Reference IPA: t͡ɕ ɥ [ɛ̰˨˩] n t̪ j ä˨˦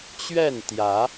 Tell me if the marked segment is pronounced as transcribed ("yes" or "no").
no